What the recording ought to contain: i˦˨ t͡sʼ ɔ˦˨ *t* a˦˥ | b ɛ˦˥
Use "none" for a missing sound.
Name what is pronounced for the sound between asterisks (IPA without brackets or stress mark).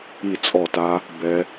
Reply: t